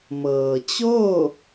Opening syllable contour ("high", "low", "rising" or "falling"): low